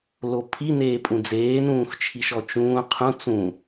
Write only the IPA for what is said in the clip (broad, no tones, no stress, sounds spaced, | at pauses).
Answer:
l o pʰ i n eː pʼ ũ d͡z eː n ũː x t͡ʃʰ i ʃ ɔ t͡ʃ ũː qʰ ũ t͡s ũ